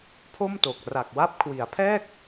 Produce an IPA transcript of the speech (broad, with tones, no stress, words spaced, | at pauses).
pʰo˥˩mto˨˩k̚ ra˨˩k̚wa˦˥p̚kʰwi˩˦a̯pʰɛː˥˩k̚